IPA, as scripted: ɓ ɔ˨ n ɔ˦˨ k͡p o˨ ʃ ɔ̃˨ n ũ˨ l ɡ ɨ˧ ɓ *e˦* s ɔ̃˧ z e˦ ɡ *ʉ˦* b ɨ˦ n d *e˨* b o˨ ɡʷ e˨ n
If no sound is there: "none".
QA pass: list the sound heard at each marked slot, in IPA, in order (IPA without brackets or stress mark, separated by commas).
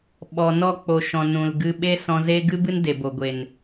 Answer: e˦, ɨ˦, e˨